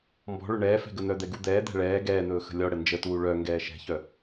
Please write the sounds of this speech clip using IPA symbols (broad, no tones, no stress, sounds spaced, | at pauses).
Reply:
m b ɔ̤ ɭ ɵ ɳ ɛː f ɛ̤ ɡ ə n̪ œ d̪ ɛ ɡ u d̪ ɛː d̪ ɛ̤ ɭ ɛː ɡ ɛː n̪ ɵː x ə̤ lʲ ɔ ɽ ə n d͡ʒ ə t uː ɭ œ ŋ ɡ ɛː ʃ ɛ̤ ç œ